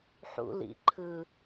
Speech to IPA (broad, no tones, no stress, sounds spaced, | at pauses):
ħ ṵ l ḭ ǃʰ ɯ